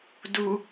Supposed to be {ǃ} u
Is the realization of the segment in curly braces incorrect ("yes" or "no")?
yes